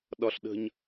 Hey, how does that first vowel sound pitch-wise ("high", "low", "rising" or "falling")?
high